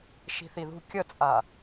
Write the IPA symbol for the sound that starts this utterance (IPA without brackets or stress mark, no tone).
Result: ʃ